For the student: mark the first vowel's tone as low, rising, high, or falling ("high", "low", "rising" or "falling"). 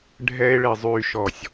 high